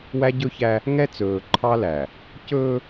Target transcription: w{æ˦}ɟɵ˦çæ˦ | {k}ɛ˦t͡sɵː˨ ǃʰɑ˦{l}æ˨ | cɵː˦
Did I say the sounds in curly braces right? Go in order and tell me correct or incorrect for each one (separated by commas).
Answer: correct, incorrect, correct